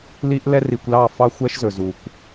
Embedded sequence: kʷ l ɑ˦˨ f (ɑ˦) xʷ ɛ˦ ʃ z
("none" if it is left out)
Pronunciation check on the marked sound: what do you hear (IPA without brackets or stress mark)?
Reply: ɑ˦